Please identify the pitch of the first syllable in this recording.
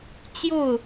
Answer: falling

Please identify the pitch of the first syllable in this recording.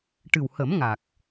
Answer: low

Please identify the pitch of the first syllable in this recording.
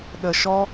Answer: low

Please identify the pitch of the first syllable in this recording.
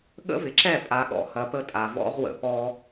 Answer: high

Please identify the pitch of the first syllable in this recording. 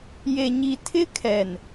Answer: low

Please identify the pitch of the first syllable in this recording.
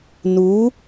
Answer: rising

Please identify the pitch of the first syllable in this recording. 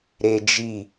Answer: high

